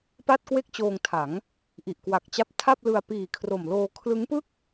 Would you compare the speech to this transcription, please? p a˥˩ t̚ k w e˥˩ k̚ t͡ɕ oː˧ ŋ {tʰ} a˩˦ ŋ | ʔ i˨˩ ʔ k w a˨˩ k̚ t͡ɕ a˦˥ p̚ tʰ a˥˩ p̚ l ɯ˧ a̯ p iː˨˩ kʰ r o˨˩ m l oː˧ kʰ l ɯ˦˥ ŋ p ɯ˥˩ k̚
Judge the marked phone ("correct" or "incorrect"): correct